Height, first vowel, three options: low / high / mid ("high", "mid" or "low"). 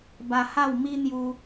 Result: low